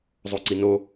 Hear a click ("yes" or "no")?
yes